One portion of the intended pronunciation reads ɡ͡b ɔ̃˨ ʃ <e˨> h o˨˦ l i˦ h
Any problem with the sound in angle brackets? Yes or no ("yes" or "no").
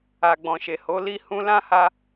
no